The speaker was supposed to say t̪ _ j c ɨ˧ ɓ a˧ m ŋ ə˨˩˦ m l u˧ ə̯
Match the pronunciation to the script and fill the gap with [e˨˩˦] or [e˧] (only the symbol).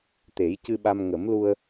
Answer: e˨˩˦